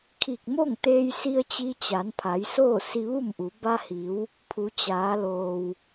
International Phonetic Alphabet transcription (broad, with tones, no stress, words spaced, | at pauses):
kʰi˧˩k̚mo˥˨ŋt̪eː˧jsi˧ə̯ t͡ɕi˧t͡ɕa˩˧npʰa˩˧j soː˥˨si˧ʋu˥˨mʔu˩˧ ba˧hi˩˧w | pʰu˩˧t͡ɕaː˩˧loː˩w